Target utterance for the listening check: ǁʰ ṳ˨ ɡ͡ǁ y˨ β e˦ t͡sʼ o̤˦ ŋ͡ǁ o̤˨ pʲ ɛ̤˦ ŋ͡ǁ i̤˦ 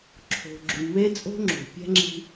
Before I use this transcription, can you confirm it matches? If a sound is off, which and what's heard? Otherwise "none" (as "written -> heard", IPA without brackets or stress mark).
ṳ˨ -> o̤˨